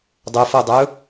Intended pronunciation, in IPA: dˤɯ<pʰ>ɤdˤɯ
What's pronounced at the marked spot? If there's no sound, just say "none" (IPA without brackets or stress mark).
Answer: f